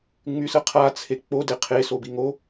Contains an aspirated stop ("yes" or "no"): yes